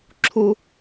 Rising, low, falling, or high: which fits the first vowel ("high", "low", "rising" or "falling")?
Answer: high